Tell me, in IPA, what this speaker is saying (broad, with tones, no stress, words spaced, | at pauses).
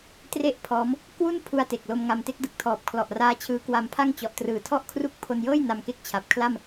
tre˥˩ʔpʰɔː˦˥m | kwu˥˩n pʰu˧a̯te˨˩k̚lo˧m ŋa˧mte˥˩k̚dɯ˨˩k̚ tʰɔː˨˩p̚kʰlɔ˨˩ʔraː˦˥ t͡ɕʰɯː˦˥kwa˧mpʰa˥˩ŋ t͡ɕɔ˨˩ʔtrɯː˨˩tʰɔ˥˩ʔkʰru˦˥k̚ pʰo˧njɤː˥˩j na˧mke˦˥k̚t͡ɕʰa˨˩p̚kʰla˥˩m